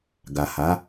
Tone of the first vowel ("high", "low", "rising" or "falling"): low